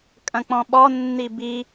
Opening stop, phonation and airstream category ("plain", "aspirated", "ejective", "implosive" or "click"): ejective